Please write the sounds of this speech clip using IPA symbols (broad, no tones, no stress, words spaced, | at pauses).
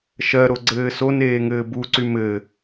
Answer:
ʃɜɾo ɡ͡ǀɘːsoneː ŋɘːbuǀy mɘ